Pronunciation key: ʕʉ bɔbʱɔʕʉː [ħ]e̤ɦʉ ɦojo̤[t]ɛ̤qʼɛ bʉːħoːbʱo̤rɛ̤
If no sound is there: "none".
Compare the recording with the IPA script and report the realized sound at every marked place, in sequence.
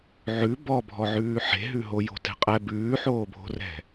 ħ, t

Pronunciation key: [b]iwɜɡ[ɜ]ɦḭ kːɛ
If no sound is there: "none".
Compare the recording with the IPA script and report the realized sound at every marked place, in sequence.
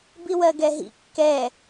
b, ɛ

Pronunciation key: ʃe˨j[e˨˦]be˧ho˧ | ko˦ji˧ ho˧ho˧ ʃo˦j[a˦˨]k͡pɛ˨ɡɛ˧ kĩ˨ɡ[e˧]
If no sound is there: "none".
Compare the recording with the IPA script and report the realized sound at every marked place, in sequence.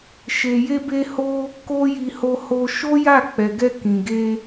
e˧, a˦˨, e˧

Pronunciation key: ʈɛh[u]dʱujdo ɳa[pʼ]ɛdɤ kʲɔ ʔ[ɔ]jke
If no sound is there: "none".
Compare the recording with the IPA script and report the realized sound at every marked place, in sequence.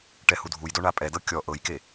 u, pʼ, ɤ

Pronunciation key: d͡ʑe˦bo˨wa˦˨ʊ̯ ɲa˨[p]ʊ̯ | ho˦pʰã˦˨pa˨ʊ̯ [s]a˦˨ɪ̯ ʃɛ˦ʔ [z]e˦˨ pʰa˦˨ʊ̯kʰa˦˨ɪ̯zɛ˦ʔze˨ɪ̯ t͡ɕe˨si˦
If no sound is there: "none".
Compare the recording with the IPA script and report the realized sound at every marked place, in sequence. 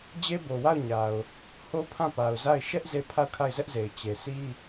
none, z, z

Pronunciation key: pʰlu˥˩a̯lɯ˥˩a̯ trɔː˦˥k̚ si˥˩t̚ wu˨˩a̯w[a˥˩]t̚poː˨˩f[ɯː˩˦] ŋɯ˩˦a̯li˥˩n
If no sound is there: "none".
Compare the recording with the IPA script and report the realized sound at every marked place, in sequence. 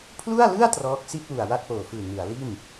a˥˩, ɯː˨˩

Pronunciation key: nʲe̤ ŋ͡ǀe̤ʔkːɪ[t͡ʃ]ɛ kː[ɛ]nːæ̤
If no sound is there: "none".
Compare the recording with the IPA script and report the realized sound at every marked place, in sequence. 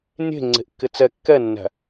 t͡s, ɛ

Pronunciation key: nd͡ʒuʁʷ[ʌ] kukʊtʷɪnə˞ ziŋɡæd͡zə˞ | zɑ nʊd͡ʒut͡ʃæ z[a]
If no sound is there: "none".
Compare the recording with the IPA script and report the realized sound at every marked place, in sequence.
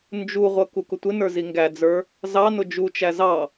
ʌ, ɑ

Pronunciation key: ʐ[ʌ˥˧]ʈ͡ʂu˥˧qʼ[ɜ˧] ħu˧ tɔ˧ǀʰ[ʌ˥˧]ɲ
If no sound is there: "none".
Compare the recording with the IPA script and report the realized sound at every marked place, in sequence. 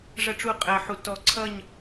ʌ˥˧, ɜ˧, ʌ˥˧

